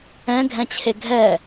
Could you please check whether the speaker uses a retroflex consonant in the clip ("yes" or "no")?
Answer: no